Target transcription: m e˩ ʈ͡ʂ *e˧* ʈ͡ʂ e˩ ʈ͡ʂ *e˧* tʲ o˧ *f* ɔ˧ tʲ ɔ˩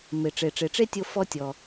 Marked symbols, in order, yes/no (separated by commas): no, no, yes